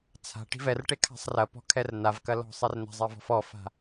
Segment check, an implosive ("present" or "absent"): absent